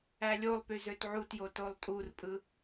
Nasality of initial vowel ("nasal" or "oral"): oral